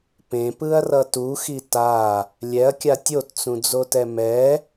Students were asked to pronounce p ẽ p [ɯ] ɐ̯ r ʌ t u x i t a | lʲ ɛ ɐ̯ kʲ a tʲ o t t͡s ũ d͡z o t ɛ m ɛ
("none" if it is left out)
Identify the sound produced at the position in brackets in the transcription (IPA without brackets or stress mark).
ɯ